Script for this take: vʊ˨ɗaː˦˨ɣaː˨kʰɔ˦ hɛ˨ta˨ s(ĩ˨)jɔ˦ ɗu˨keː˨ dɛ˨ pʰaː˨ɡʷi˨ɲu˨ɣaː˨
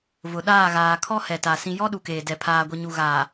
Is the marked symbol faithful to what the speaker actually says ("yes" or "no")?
yes